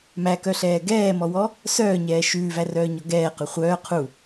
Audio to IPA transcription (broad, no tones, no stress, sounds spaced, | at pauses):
m æ k œ ɬ ɛː ɡ ɛː m ɔ w ɔ | s œː ɲ ɛː ʃ ʉː v æ r œː ɲ ɔ ɡ ɛː q ʉ χʷ œː qʰ u